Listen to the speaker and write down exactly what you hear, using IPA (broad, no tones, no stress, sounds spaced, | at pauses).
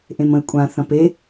ʔ ẽ m ə̃ ɪ̯ kʷʼ ã θ ɐ̃ p e